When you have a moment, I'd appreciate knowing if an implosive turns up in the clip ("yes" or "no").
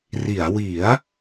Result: no